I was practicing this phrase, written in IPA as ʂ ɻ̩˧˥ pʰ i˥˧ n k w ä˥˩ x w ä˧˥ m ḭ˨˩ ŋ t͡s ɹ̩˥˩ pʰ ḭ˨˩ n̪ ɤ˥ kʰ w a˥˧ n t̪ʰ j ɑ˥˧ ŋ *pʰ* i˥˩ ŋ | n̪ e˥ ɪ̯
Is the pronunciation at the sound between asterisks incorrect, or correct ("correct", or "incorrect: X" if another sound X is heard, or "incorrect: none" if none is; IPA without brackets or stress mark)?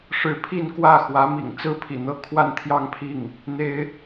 correct